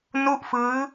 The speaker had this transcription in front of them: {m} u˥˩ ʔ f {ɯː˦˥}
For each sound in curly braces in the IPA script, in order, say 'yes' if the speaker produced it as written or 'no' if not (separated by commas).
no, yes